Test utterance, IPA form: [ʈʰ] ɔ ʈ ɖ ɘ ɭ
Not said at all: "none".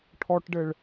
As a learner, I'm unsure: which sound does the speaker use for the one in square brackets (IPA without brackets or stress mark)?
ʈʰ